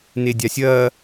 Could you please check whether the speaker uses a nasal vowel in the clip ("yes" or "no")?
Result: no